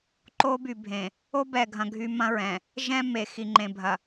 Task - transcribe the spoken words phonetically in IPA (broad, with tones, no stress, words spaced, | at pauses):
ǃo˦by˨bʱẽ˨ | o˦bɛ˨ɡʱɐ̃˨ ɡʱy˦ mɐ̃˦ɹɛ̃˨ | ʒɛ̃˦ me˨xi˨ŋ͡ǃẽ˨ bʱɐ˨